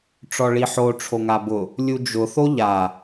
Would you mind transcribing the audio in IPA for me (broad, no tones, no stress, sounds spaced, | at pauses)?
ʈ͡ʂ ɔ ɭ i ħ o ʈ͡ʂʰ o ŋ a b ʊ | lʲ u d͡ʒ ʊ θ o ʎ a